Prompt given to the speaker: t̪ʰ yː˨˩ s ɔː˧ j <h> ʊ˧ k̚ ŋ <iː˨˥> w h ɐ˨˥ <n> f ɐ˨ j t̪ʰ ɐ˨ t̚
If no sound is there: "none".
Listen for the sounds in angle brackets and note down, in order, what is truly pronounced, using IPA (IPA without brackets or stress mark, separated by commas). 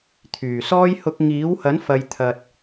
h, iː˨˥, n